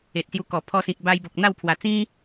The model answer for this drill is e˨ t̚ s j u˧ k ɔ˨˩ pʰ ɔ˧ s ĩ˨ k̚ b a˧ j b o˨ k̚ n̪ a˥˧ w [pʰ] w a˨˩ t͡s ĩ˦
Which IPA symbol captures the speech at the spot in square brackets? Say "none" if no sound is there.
pʰ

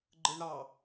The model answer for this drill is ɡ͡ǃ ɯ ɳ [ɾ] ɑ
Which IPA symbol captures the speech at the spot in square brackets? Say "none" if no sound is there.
ɾ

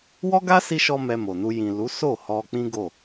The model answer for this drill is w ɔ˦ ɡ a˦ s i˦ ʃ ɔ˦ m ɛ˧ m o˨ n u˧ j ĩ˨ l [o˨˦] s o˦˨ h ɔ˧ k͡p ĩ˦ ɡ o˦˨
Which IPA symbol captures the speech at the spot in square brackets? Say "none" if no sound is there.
u˨˦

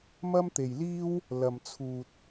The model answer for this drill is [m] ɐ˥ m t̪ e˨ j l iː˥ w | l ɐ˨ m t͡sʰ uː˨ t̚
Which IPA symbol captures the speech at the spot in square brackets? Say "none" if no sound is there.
m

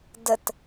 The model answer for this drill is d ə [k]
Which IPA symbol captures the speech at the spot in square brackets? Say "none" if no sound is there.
t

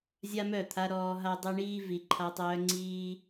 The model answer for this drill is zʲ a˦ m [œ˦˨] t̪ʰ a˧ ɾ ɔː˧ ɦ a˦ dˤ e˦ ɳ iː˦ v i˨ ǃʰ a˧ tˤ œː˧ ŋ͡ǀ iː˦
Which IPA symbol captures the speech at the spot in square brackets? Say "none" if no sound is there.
œ˦˨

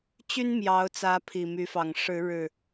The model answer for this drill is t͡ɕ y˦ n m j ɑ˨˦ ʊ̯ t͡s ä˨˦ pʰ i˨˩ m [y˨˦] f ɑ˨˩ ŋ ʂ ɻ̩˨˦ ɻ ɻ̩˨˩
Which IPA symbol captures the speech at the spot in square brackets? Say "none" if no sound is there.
y˨˦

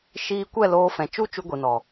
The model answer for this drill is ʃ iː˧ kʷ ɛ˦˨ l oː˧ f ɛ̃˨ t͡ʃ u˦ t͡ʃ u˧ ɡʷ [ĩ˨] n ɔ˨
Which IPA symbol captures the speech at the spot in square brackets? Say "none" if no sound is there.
i˨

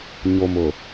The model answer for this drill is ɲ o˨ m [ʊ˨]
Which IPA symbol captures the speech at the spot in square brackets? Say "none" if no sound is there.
ʊ˨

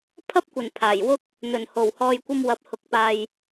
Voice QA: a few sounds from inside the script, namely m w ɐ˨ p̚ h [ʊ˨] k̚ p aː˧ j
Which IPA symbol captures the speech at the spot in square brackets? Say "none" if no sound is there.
ʊ˨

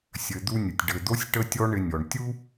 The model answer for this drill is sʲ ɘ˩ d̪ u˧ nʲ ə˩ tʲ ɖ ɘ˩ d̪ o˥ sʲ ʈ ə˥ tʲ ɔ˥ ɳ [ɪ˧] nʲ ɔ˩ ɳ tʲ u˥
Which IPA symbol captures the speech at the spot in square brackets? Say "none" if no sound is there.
ɪ˧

